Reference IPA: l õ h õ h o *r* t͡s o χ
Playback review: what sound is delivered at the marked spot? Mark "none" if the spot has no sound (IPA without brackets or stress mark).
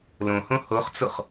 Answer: χ